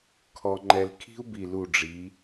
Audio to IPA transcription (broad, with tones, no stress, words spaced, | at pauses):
kʰɔ˧ŋ͡ǃɛ˧l kʰi̤˥u̯bi˧˩lu˧˩ ɖ͡ʐi˩˧